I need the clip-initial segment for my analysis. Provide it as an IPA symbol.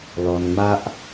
l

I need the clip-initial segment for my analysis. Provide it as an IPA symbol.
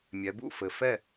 mʲ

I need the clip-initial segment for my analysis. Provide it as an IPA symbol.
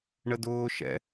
ɳ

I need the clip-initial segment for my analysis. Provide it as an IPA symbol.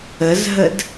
ə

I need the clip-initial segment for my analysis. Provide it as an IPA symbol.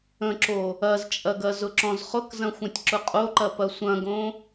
ə̃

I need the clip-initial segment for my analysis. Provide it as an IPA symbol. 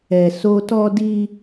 ɛ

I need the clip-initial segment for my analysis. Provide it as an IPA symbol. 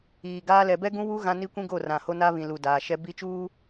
iː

